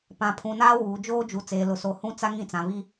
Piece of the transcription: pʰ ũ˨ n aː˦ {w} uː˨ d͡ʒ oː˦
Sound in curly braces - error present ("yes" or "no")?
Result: no